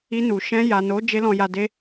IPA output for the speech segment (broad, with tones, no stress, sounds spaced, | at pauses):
i˧ n u˨ ʃ ɛ̃˧ j a˨ n o˨˦ d͡ʒ e˦ l ɔ̃˧ j a˧ d e˧